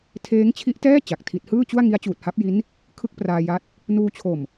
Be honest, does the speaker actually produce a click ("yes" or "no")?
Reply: no